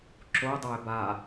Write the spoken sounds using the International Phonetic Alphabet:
ǁ o dˤ a ɪ̯ b a

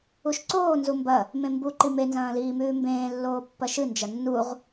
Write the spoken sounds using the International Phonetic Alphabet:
u ʃ ǀ oː n z u m b ɐ | m ẽ m b u ǃ i m e n z ɐ̃ː l iː m ʉː m b ẽː lː oː pː ɐ ʃ ɨ n d͡ʒ ɐ nː u ʁ

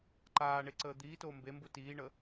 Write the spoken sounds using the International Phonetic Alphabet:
ǃ aː ɳ e ǀ əː d̪ iː t oː m b e m b u t iː ɳ ə

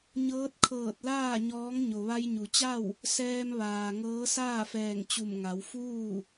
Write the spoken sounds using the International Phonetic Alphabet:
ɲ ɤː˧˥ t̚ kʰ ɤː˧˩ t̚ l aː˥˨ ɲ ɔː˧˥ ŋ ɲ o˩ ʋ a˧ j ɲ u˩ t͡ɕ a˥˨ w | s ɛː˧ m ʋ aː˩ ŋ ɤː˧˥ s aː˥˨ f ɛː˧˩ ŋ t͡ɕ u˧˩ m ŋ a˩˧ w f uː˥˨

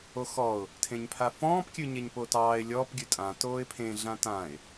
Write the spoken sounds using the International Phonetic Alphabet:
o x ɔ ʊ̯ | tʰ ẽ ɲ pʰ a f ɔ̃ː p kʲ ʉ ɲ e ɲ p oː t ɑː ɪ̯ lʲ ɔː p ɡʲ ʉ tʼ ã t oː ɪ̯ pʰ ẽ ɮ ã t ã ɪ̯

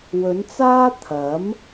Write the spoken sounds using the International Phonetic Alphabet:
w ɵ˨˧ n t͡s aː˥ t̪ʰ ɐ˨˥ m

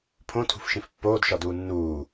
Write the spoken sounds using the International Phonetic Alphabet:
pʰ õ tʰ ṳ f ʃ ĩ f pː oː d ʃ ɒ d uː nː uː

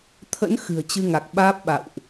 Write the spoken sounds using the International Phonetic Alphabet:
t̪ʰ ə̰˧˥ n x ɨ̤˨˩ ə̯ t͡ɕ ɨ˧ ŋ a˨˩ k̚ ɓ aː˦˥ p̚ ɓ a̰˧˨ w ʔ

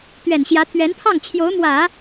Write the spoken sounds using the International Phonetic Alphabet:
t̪ ɥ ɛ˨˩ n ɕ j ä˧˥ t̪ʰ ɥ ɛ˧˥ n pʰ ɑ˥˩ ŋ t͡ɕʰ j o˧˥ ʊ̯ m w ä˨˩˦

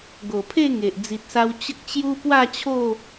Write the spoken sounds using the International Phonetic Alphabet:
ɡ o˨˩ pʰ e˥˧ ŋ e˨ ʔ d͡z i˨ t̚ s a˧ w t͡ɕ ə˦ k̚ t͡ɕ j u˦ p w a˥˧ t͡ɕʰ o˥˧

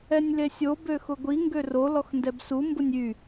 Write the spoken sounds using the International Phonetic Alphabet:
ɛ nʲ l e sʲ o b ø x ʊ ɡʷ i ŋ ɡ ø r o l ɔ x n d ɛ b s u m b ʊ nʲ y

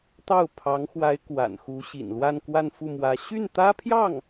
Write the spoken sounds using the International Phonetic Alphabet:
t̪ ɑ˥˩ ʊ̯ pʰ ɑ˧˥ ŋ x w a˧˥ ɪ̯ k w a̰˨˩ n x u˧˥ ɕ ḭ˨˩ n l w a˥˧ n k w a˥˧ n f u˥˩ m w ä˧˥ ɕ y˥˩ n t̪ ä˥ pʰ j ɑ˥˩ ŋ

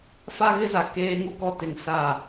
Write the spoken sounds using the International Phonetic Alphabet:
f a˦ ɣ ɪ˦ z a˨ k eː˦ ŋ u˦ k ɔ˦ t ɪ˨ ŋ s a˦˨

